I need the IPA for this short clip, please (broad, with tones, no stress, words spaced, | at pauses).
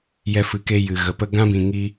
jɛ˧fɨ˨ke˧ jɨ˨ɣə˨pə˦ ɡã˦bĩ˨ŋi˧